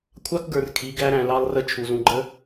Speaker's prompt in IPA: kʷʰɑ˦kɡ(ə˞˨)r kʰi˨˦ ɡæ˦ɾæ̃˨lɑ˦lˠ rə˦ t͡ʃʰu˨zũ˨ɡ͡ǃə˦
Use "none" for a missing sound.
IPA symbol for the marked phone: ə˞˨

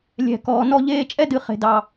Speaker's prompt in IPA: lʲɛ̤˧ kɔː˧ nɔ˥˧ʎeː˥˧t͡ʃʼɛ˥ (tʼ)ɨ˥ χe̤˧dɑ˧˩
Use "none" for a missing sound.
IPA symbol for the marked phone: d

